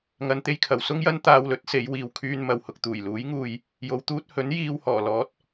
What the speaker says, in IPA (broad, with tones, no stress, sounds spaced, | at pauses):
ŋ ɐ˧ n t̪ e˥ j kʰ ɐ˨ w s ʊ˥ ŋ j ɐ˥ n t̪ aː˧ w l ɵ˨˥ t̚ s e˨˧ j w iː˨ w kʰ yː˧ n m ɐ˨ w h ʊ˨ k̚ t̪ uː˨˩ j l uː˨˥ j ŋ uː˧ j | j o˨˧ w t̪ uː˥ t̚ h ɵ˨˥ n j iː˧ w h ɔː˨˩ l ɔː˨˥ t̚